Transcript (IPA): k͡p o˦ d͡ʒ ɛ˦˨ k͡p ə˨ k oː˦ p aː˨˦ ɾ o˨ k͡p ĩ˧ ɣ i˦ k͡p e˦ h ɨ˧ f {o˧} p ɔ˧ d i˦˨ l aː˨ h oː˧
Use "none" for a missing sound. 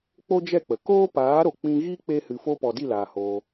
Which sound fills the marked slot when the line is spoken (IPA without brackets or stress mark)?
o˦